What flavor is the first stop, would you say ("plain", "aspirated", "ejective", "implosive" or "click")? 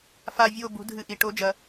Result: plain